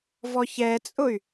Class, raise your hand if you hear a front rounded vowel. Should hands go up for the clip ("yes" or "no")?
yes